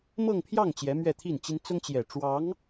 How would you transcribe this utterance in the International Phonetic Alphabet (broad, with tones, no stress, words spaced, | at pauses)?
mɤ˥˧ŋpʰjɑ˥˩ŋ t͡ɕjɛ˧˥mɥɛ˥˧t̪ʰi˥˩nt͡ɕi˥n t͡sʊ˥ŋt͡ɕjɛ˨˩ʈ͡ʂwɑ˧˥ŋ